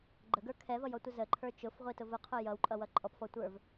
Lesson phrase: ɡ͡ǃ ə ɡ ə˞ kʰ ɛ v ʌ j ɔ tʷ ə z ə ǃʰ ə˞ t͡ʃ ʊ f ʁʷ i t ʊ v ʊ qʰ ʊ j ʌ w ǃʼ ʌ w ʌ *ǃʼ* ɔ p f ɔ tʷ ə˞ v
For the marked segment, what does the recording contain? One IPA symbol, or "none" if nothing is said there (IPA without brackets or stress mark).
ǃʼ